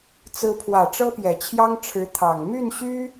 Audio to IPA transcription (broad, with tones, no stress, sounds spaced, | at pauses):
t͡s ɹ̩˧˥ pʰ w ä˨˩ ʈ͡ʂ ɤ˥ p j ɛ˨˩ t͡ɕʰ j ɑ˥ ŋ ʈ͡ʂʰ ɻ̩˧˥ t̪ʰ ɑ˨˩ ŋ m y˥˩ n ɕ y˥